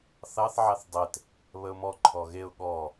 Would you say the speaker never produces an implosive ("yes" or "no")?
no